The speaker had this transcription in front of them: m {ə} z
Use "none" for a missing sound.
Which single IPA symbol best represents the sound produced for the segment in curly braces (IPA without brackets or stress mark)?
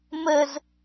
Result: ə